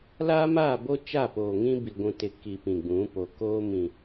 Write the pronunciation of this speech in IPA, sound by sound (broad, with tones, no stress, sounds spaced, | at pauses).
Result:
l aː˦ m aː˦˨ b o˦ t͡ʃ a˦˨ p oː˨ ŋ ĩ˦ b i˨ ɡʷ ũ˨ t ɪ˨ k i˨ p ĩ˨ ɡ͡b ũ˨˦ p o˨ k oː˦ m ĩ˨